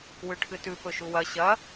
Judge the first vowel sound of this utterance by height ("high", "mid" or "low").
high